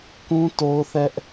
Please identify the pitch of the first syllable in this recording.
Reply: high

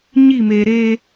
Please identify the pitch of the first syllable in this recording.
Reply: falling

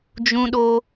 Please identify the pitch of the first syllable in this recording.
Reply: high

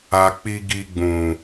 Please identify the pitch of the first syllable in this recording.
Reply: low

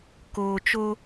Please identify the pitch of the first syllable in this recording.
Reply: low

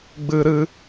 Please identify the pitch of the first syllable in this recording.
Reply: high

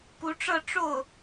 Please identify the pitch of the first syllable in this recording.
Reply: rising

